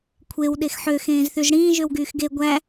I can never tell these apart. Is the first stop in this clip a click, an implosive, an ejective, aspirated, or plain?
aspirated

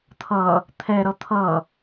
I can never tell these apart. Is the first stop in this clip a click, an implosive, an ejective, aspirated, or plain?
aspirated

